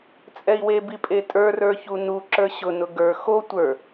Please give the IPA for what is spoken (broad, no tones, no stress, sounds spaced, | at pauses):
t͡sʼ ɛ i̯ w e b i pʼ e tʼ ə˞ r ə˞ ç u n u ǁ ə˞ ɕ ʊ n ʊ ɡ ə˞ x o tʷ ə˞